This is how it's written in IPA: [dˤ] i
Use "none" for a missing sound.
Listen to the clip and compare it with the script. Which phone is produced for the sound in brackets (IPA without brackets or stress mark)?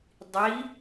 dˤ